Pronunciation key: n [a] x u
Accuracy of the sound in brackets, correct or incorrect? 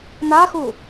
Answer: correct